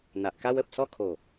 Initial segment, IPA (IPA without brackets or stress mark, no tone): n̪